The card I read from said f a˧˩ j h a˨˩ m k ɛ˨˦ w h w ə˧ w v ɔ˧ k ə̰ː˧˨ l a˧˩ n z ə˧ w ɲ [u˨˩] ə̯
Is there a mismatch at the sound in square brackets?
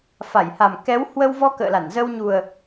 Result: no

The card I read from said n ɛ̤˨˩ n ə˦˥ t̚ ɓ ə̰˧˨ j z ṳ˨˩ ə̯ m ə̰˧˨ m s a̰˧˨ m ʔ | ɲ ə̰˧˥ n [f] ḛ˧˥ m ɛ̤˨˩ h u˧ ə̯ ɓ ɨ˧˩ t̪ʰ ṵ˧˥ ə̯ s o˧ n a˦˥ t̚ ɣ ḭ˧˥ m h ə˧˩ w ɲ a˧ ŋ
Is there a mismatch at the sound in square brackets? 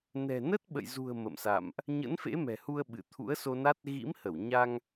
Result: no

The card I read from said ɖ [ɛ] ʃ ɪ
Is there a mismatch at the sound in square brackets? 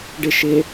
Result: yes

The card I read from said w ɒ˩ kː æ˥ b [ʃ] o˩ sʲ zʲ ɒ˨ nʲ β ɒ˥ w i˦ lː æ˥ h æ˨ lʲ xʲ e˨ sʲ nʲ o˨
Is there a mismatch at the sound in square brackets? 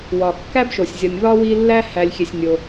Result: no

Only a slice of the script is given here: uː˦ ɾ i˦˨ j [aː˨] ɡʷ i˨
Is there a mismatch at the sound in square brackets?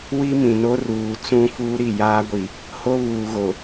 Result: yes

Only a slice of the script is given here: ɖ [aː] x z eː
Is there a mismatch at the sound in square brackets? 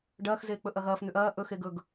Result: yes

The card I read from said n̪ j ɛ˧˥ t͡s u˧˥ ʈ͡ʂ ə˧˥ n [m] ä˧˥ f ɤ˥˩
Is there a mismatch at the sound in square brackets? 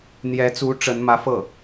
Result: no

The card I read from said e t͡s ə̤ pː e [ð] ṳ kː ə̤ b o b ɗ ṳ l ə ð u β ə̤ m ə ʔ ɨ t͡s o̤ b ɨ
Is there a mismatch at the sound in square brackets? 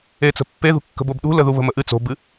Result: no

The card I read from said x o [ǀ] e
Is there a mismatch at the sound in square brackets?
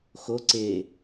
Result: no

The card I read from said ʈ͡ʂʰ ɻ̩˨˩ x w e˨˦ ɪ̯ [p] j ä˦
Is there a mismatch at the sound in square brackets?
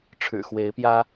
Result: no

